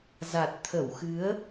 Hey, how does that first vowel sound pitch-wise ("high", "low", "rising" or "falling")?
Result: low